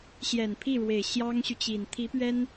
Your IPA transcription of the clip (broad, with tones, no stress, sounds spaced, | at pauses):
ɕ j ɛ˨˩ n pʰ i˥˩ ɻ w e˨˩ ɪ̯ ɕ j ɑ˥ ŋ ɕ y˨ t͡ɕ i˨˩ n t̪ʰ i˧˥ p ɥ ɛ˥ n